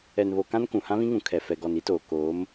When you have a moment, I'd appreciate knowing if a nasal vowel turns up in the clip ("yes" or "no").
yes